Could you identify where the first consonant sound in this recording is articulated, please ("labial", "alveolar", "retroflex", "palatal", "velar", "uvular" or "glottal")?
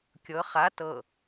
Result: velar